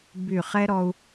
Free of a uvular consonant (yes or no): no